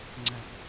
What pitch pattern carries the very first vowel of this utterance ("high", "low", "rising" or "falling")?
high